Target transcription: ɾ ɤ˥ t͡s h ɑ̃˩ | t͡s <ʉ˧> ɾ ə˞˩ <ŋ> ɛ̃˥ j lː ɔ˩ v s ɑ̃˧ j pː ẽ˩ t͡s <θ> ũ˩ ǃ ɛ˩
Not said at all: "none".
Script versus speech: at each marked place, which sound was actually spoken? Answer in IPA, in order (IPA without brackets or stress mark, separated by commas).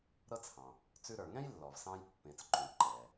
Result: ʉ˧, ŋ, ǃ